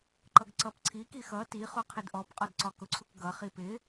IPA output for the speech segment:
ǃ ʌ ɡ ǀ ʌ p ǀʰ i k i x ʌ t i χ u qʰ ɪ d ʔ ɔ p qʼ ɒ d ǀ ɒ k ʊ ǀʰ u k ɡ ʌ χ i p ɪ

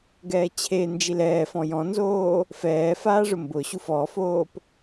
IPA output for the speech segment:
ɡ ɛː t͡ɕʰ e n d͡ʒ i l ɛː f ɔ̃ j ɔ̃ n z oː | f ɛː f aː ʐ ʊ m b ʊ ɕ u f ɔ f oː p

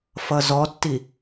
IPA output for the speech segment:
f ʌ z ɔ tː i

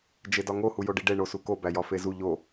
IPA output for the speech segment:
d͡ʒ e d ɒ ŋ o h u j o ɖ i ɖ e ɳ o s u k o b æ j ɒ f e z u ʎ o

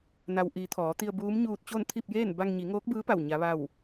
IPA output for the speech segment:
n a˩ w ʔ i˩˧ t̪ʰ ɔː˩˧ t̪ i˧ ə̯ b uː˧˥ m ɲ uː˧ t̚ t͡ɕ o˥˨ n t̪ʰ i˥˨ p̚ j eː˥˨ n b a˧ ŋ ɲ i˩˧ ŋ oː˧˥ k̚ b ɯː˧˥ p a˧˩ w ɲ a˧˥ ʋ a˥˨ w

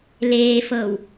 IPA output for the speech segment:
l eː f ɤː w

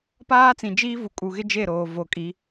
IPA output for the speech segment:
p aː˦ t͡s ĩ˨ d͡ʒ iː˦ v u˨ kʼ u˨ ɣ ɪ˦ d͡ʒ e˦˨ ɾ oː˨ v o˨ kʼ i˨˦

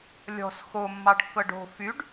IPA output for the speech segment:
lʲ ɔ̤ s x o mː ɑ ɖ kː ɤ ɖ o̤ f y ɖ

